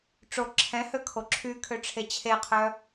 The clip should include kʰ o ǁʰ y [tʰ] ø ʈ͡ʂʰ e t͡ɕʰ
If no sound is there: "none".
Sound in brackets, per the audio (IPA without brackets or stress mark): kʰ